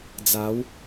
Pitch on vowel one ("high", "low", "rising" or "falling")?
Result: rising